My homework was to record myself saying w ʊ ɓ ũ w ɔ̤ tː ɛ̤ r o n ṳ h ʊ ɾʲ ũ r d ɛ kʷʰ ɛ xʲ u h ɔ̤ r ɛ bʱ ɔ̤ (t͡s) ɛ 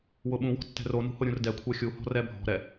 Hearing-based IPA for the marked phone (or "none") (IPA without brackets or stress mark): ɾ